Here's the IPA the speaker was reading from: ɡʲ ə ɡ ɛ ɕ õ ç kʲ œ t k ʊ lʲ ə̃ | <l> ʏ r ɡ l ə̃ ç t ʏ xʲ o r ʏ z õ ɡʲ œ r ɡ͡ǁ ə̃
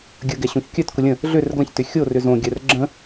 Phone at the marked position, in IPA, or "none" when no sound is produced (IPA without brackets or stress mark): ɮ